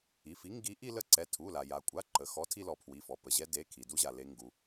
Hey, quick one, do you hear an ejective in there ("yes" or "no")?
yes